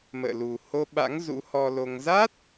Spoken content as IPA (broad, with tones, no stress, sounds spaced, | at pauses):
m ə̰ː˧˨ l u˨˩ h o˧ ɓ a̰˧˥ ŋ z ṵ˧˥ h ɔ˧ l o˧ ŋ z a˦˥ t̚